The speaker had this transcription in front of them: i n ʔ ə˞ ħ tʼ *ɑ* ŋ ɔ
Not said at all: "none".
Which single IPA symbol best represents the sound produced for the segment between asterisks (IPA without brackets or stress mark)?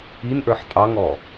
ɑ